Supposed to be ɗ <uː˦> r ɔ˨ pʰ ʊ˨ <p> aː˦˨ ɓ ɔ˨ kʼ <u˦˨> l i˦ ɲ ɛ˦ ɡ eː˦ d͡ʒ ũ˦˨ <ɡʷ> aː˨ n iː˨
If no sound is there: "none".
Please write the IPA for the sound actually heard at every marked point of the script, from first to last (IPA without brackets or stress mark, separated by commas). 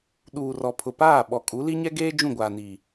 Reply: uː˨, p, u˨˦, ɡʷ